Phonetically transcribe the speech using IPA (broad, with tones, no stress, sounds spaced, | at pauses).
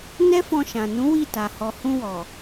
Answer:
n ɛ˦ f ɔ̃˧ ʃ ã˨ n ũ˨˦ w i˦˨ t a˨ h ɔ˨ h ũ˧ w ɔ˨